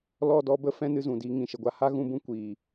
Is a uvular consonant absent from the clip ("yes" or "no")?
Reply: yes